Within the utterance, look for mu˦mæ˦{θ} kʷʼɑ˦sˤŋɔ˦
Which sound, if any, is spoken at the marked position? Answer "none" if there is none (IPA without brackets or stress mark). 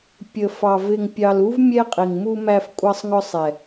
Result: f